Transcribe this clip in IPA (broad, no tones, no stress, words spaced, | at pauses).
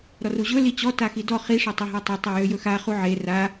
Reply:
ɾɔruʑɵ lit͡ɕɔ taxidɔ χi ʂøtˤiɦatˤɵ tˤijøjɵxa χuʕe ra